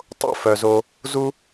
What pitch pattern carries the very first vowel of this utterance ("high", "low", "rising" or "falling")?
falling